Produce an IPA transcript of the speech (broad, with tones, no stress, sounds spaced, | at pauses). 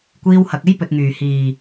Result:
kʷ iː˧ w h ɐ˨ k̚ e˥ j p ɵ˨ t̚ ŋ yː˨˩ h iː˨˩